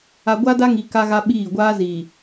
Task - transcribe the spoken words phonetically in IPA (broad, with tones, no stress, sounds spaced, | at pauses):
a˨ ɡʷ a˦ d a˦ ŋ i˨ k a˦ ɣ a˦ ɓ iː˦˨ ɡʷ aː˦ z iː˨